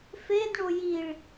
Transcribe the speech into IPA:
fedɳo jiɭ

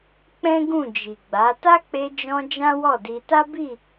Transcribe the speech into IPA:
k͡pɛ̃˦ɡũ˦˨d͡ʒi˨ɡ͡ba˨˦ ta˦k͡pe˧d͡ʒɔ̃˧ d͡ʒã˦wɔ˦˨di˧ ta˦bi˦˨

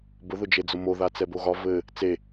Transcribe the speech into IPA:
bʊðʊd͡ʒed͡zʊ moðat͡sɛbo ɣɒ vɘ | t͡se

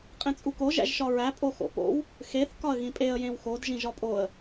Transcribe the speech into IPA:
qʼẽt͡sʼuko ʒæ̰ʒʃɒɹæ pʼoxo̰po̰w | xeθ kɒə̯ɣĩpʼeə̯ jẽwxod ʒĩʒɒpʼoə̯

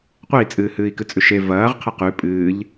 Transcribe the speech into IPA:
qʷei̯t͡sʼɨːhɨːi̯ kɨt͡sʼʉʃe vɐːʁqʰɐ qʉ pʼɨːʎ

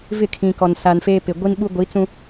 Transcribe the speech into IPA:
vɪ˦˨kʰĩ˨kɔ˨n sa˨nfeː˦pɪ˨ ɡʷi˦nɓu˦ ɡʷi˨˦t͡sũ˦

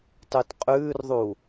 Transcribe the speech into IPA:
tˤʉtqʼʉːrðˤu

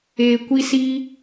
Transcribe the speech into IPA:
eː˨kʷi˧si˧

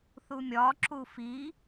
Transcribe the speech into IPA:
θumʲɒ ǁufi

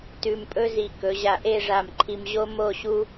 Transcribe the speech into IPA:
tʉ˧m pʼɵ˥zi˧˩ kɵ˩˧ʑa˧˩ʔe˥˧ʐa˧˩m ǃʰi˧mʑo˥mo˥˧ ɕu˥

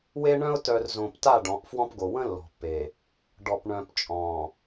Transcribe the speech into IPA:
we˦ɳœ̃˦ʊ̯ tœ˨r zõ˨pta˦˨ ɖɔ̃˨˦ʔfwɔ̃˦pɡo˨ wə̃˦ lːɔ̤˨pːe˨ | ɖɔ˨pɳœ̃˨pt͡ʃʼɔ̃˨

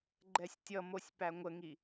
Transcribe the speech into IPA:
ɡ͡ǃɛsʲtʲʌmosʲ pæŋʷəŋi

